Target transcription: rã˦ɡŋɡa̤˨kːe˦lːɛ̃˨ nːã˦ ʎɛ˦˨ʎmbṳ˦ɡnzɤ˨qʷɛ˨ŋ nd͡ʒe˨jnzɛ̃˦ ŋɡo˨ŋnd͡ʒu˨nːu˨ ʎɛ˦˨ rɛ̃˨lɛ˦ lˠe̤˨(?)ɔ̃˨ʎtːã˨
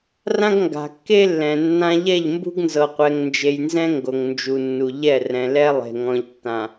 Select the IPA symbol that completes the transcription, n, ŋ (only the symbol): ŋ